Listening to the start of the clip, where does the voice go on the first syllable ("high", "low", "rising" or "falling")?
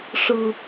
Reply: high